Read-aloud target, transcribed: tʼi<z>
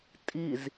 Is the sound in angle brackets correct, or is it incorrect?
correct